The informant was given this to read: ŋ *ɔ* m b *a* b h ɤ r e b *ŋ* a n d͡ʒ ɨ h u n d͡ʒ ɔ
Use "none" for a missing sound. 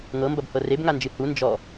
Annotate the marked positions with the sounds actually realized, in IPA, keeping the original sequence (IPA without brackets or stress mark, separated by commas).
ɤ, ɐ, ŋ